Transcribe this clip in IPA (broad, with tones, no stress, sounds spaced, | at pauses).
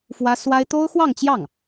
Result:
f w ä˥ s w a˥ ɪ̯ t̪ o˥ ʊ̯ x w ɑ˥˧ ŋ t͡ɕ j ɑ˥˩ ŋ